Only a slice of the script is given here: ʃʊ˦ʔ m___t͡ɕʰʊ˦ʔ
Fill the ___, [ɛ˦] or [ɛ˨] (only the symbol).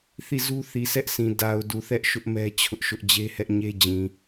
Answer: ɛ˦